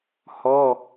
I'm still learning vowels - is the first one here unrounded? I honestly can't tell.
no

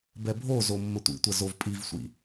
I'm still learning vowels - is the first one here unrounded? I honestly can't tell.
yes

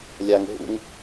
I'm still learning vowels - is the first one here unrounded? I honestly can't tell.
yes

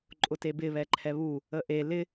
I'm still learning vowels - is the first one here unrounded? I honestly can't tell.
no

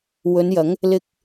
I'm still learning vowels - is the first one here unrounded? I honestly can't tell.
no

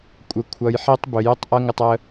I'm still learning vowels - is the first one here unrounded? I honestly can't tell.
yes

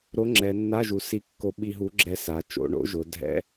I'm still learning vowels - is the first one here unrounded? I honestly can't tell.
no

